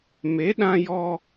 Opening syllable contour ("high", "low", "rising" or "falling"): rising